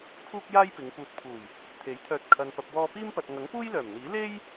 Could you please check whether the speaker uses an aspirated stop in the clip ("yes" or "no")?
yes